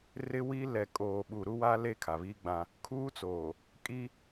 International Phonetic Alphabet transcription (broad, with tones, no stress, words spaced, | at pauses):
rɪ˦wi˦ lɛ˨kʼoː˨ɓu˨ ɾu˦wa˦ le˦kʰa˨βiː˦ɡ͡bã˦ | kʰuː˦t͡soː˨ | kʼi˦